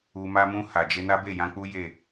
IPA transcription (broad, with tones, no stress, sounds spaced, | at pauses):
u˧ m a˦ m ũ˧ h a˨ d͡ʒ e˧ n a˦ b e˦˨ j ã˧ k͡p u˦ j e˦˨